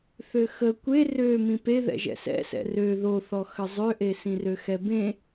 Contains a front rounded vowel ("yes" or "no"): yes